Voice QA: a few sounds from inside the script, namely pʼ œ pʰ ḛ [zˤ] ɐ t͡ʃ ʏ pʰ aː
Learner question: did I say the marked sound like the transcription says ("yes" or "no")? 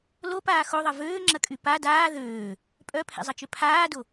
yes